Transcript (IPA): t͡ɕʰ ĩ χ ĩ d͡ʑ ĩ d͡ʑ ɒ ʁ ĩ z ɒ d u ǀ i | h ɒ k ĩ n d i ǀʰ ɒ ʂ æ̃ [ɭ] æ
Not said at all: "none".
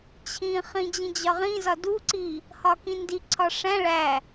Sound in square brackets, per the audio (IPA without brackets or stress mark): ɭ